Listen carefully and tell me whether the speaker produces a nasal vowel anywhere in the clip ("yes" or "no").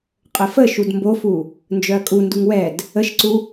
no